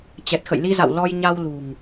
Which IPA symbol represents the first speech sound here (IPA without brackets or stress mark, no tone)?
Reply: t͡ɕ